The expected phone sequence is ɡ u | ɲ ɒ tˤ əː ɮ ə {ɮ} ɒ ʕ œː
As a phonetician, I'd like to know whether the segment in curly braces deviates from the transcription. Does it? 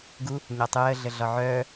no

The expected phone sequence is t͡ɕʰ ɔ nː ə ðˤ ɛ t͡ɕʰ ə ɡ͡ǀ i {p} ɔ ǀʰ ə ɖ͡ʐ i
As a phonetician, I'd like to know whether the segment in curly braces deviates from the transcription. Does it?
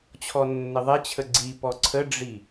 no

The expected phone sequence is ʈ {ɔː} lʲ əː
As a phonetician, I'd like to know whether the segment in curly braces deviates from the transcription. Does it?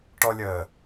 yes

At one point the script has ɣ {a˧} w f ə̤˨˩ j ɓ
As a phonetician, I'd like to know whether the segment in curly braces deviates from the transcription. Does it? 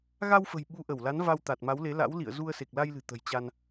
no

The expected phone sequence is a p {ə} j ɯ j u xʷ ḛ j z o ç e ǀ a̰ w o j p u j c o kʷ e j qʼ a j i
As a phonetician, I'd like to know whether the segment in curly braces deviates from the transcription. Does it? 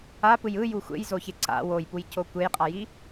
yes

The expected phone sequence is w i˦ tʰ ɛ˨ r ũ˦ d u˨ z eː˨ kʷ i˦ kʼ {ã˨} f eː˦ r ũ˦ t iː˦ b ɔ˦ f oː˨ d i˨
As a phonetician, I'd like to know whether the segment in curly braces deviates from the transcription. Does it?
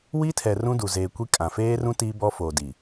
no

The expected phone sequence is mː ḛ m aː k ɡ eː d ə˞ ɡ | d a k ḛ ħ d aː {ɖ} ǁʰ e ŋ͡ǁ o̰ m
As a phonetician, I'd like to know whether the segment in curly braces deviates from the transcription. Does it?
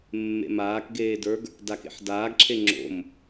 yes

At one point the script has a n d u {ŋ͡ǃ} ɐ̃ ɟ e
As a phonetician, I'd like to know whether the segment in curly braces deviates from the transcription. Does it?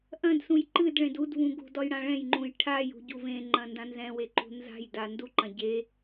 yes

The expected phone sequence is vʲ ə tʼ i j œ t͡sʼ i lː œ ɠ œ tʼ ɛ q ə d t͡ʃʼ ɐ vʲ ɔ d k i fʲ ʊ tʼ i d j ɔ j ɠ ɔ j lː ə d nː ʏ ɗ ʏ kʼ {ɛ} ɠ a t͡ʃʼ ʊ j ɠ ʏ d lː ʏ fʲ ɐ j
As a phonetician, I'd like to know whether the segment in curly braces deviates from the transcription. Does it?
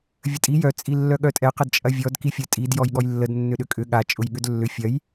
yes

